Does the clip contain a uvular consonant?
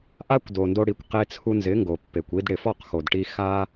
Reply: yes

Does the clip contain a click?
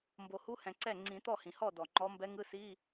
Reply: yes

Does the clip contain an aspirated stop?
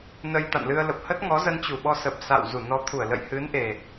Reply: yes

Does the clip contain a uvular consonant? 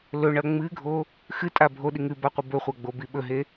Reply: yes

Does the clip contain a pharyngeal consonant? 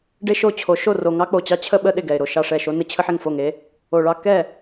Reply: yes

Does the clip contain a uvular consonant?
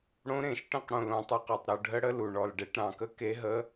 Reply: yes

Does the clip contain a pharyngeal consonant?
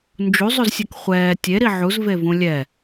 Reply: yes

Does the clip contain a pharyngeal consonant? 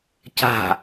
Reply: no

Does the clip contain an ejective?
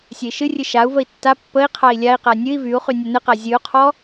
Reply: no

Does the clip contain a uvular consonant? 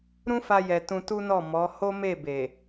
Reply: no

